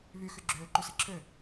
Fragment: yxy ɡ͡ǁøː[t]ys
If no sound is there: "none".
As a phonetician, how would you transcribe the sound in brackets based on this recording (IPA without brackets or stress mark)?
ǃ